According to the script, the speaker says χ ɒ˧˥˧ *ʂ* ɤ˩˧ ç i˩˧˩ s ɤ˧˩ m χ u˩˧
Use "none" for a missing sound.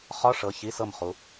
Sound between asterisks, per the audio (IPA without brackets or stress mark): ʂ